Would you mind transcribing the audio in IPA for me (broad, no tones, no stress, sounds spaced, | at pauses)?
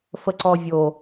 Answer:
f ə ǀ ɔ vʲ o